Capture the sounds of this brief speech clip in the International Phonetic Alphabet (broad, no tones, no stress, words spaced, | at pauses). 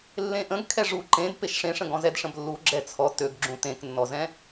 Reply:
lːẽʔə̃ɡ kʰɛʐu ǃẽd peʃʂẽʂə̃ɡɔ̃ zɛdʂə̃blːu ɡ͡ǁɛt͡sʰɔ tøɡɡ͡ǁũ tẽknːɔzɛ̃